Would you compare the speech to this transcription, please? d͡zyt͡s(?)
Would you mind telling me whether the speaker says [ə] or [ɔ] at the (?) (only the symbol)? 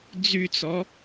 ɔ